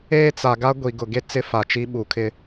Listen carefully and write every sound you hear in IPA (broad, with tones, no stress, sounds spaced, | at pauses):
eː˦ t͡s a˨ ɡ a˦ ɡʷ i˨ ɡ ʊ˨ ɡ e˦ t͡s ɪ˦ f a˨ t͡ʃ i˦ ɓ u˨˦ kʰ ɪ˦